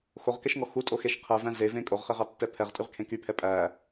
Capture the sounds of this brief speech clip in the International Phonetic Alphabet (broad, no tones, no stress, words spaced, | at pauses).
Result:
xoʁkɛʃŋɔ xutʼoxeʃ qʰɛvæ̃ zevẽ kʼoʁχeʁɑtːɛ pʰɛʁtʼyʁkʰẽ kypʰɛ pʼæ